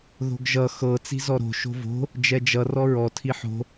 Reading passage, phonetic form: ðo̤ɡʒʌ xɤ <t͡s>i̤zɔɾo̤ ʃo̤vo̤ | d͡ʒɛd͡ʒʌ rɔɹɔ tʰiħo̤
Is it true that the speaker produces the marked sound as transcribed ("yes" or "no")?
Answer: yes